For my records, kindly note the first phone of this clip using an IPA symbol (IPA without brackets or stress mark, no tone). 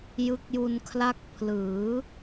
j